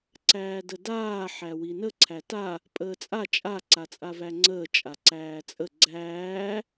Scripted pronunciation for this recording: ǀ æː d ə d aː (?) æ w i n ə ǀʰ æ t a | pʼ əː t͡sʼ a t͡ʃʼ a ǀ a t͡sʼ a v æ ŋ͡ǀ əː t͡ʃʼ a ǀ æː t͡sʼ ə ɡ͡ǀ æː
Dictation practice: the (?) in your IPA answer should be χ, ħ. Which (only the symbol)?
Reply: ħ